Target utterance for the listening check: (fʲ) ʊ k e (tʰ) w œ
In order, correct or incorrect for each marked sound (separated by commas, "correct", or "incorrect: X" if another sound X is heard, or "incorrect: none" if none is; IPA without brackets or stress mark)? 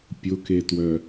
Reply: incorrect: pʲ, incorrect: t